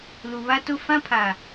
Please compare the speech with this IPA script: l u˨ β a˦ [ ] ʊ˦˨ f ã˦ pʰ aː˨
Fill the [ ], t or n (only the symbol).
t